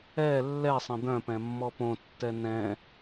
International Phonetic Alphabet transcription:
ɛ lː ɛ sˤ ə̃ d̪ œ̃ p ɛ̃ mː ɔ p õ tː ɛ n ɛ̃

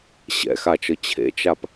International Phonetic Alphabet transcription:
ɕ ɛ̰ x a t͡ʃ ɤ t͡ɕʰ ḛ t͡ʃ a p

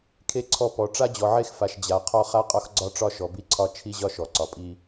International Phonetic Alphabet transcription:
kʰ e˦ ǀʰ ɔ˦ p ɔ˨ ʈ͡ʂ a˦ d͡ʑ ɔ˨ ʕ e˦ x f a˨ ʃ d͡ʑ a˨ qʰ ɔ˦ χ a˦ qʼ ɒ˦ x ɡ͡ǀ ɒ˦ ʈ͡ʂ ɒ˦ ʃ ɔ˨ b i˦ ǀʰ ɒ˦ t͡ʃʰ i˦ ʑ ɒ˦ ʃ ɔ˨ ǀ ɒ˨ pʼ i˦

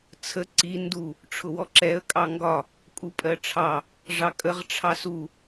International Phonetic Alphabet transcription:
t͡sʰ ə ǀ i n d u | ʈ͡ʂʰ ʊ w ɔ ǁ ɛ ə̯ kʼ ɑ ŋ ɡ ɒ | kʼ u pʼ ɜ ʈ͡ʂʰ ɑ | ʐ ɑ kʼ ə ʁ ʈ͡ʂʰ ɑ s u

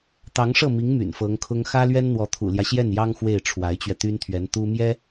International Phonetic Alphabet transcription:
t̪ ɑ˧˥ ŋ ʂ ɤ˥˩ m i˧˥ ŋ m y̰˨˩ n f ɤ˧˥ ŋ kʰ ʊ˥ ŋ x ä˥ l ɥ ɛ˥ n n̪ w ɔ˧˥ t̪ʰ ṵ˨˩ l j ä˦ ɕ j ɛ˥˩ n j ɑ˥ ŋ x w e˥˩ ɪ̯ ʈ͡ʂʰ w a˧˥ ɪ̯ t͡ɕ ɥ ɛ˧ t̪ y˥ n t̪ʰ ɥ ɛ˧˥ n t̪ u˥ m j ɛ˥

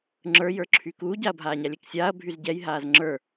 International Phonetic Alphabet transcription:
ŋ͡ǁ ə˞ j ə˞ ǁʰ yː k uː ɟ a ɐ̯ bʱ aː ɲ a lʲ ɛ k sʲ aː ɐ̯ bʱ y z ɟ ɛ j ɦ aː z ŋ͡ǁ ə˞

